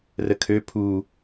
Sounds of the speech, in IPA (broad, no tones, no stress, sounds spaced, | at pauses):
r ə kʰ ø pʰ u